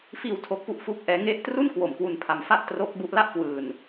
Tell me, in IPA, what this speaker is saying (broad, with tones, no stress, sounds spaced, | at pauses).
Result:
f iː˧ w tʰ o˦˥ k̚ p u˥˩ ʔ f u˦˥ k̚ ʔ ɛː˦˥ ŋ e˦˥ ʔ t r u˥˩ n k w o˨˩ m k w u˧ n pʰ a˧ m f a˥˩ ʔ t r o˦˥ k̚ b u˦˥ ʔ l a˥˩ ʔ k w ɯː˧ n